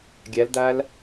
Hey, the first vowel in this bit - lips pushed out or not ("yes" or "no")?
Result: no